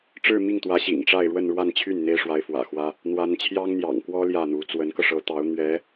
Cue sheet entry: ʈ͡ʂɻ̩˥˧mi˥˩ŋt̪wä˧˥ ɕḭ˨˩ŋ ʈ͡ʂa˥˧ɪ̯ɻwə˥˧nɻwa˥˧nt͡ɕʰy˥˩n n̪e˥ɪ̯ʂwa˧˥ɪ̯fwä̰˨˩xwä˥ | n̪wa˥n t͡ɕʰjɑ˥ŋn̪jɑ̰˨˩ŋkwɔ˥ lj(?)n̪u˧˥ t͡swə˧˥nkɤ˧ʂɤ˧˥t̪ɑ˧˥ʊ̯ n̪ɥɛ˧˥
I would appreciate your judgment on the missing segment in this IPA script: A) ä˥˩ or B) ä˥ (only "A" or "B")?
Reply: A